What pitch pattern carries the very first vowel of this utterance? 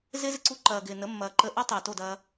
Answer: high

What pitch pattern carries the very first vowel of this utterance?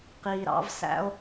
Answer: low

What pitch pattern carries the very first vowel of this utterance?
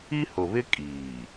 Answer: high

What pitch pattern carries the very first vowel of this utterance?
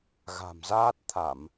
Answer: low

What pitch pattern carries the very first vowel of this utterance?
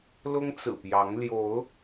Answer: high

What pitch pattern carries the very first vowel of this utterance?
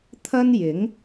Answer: high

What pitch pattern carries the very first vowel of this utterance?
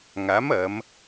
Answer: rising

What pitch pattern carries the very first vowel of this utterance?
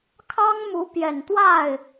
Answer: high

